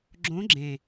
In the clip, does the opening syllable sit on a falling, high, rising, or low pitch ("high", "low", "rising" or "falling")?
rising